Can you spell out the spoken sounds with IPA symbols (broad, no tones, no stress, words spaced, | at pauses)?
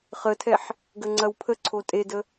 χətʰɛħ | ɡəŋ͡ǀɐwpʰəǀʰo tʼedə